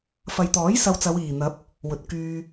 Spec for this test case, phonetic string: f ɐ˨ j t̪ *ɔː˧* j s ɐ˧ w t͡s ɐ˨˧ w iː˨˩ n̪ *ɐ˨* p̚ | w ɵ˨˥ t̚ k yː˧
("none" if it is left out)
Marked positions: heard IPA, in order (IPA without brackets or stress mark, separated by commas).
ɔː˨˥, ɐ˨˥